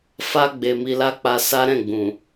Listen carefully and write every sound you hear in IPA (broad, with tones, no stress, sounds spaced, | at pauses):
f a˧ ɡ͡b e˨ m i˧ l a˦ k͡p a˧ s a˦ ɾ ɛ̃˦˨ ɡ͡b ũ˨